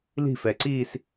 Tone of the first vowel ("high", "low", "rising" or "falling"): falling